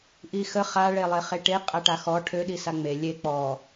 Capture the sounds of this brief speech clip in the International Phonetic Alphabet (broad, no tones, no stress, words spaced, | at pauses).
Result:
ʔixə χa ɭelˠeχeʈe qʼaʈaxɔ ʈʰø ɗisaŋ͡me lʲe k͡pɔ